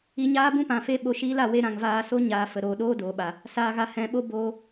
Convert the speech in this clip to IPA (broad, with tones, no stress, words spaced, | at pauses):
i˧ɲaː˦ bũ˦pã˨fe˧ ɓo˧ʃiː˦la˧ we˦ɾã˦˨ŋvaː˦ so˦ɲaː˨fə˨ ɾoː˨ɗoː˦doː˨ɓa˨ | saː˨ɣa˨ hɛ̃˨ɓo˦ boː˧